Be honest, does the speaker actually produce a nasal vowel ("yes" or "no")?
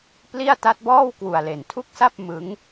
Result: no